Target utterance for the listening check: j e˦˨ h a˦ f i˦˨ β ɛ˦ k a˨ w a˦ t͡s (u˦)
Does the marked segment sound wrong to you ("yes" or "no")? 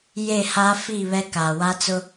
yes